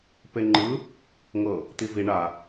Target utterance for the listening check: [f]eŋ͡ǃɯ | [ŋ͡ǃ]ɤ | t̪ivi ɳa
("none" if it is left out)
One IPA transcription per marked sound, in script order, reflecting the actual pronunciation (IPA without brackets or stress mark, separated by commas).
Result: p, ŋ